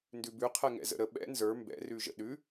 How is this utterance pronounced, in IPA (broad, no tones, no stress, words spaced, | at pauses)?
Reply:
ndʉbʉ qʰɛŋɛ̰zə̰ɾə ɓɛ̰ nzə˞ mbɛ̰ rʉʒə̰ɗʉ